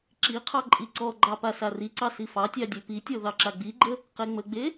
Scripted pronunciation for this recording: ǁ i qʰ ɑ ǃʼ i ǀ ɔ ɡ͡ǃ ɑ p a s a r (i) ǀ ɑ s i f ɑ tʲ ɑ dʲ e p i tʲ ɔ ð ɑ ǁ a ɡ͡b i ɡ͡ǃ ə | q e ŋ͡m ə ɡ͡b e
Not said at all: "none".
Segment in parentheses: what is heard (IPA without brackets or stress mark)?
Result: i